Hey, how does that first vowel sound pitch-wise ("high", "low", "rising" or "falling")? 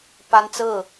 high